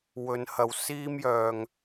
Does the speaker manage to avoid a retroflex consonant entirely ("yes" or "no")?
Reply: yes